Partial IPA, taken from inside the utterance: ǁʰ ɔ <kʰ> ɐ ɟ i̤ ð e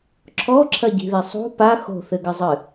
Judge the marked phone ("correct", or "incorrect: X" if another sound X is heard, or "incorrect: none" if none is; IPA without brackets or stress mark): incorrect: ǁʰ